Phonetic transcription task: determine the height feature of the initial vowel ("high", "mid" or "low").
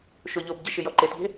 mid